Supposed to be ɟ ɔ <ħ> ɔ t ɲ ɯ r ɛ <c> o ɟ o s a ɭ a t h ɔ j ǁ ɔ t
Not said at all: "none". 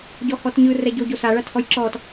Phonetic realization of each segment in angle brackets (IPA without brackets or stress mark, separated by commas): h, ɟ